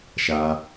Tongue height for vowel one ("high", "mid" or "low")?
low